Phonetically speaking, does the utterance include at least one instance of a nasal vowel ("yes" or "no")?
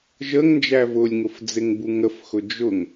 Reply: no